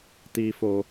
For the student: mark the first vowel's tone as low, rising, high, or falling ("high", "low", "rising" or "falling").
low